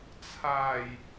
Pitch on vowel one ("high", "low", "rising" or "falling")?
low